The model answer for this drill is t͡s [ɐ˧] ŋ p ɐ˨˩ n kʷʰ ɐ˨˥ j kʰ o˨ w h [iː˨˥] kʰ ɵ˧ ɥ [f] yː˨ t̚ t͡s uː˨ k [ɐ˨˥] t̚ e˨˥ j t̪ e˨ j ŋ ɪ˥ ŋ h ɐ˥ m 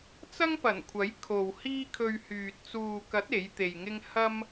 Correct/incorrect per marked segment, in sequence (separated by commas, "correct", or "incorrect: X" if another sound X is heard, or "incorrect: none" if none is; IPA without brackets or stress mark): incorrect: ɐ˥, incorrect: iː˥, incorrect: h, correct